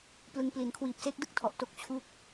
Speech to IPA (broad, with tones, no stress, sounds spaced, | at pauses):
p l ɯ˧ ŋ p l i˨˩ n kʰ w iː˨˩ p̚ s e˦˥ k̚ d ɯ˥˩ k̚ tʰ ɔ˨˩ ʔ t o˦˥ k̚ t͡ɕʰ u˥˩ k̚